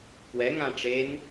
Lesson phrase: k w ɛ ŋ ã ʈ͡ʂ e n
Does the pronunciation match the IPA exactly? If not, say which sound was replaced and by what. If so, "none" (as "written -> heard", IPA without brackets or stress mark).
none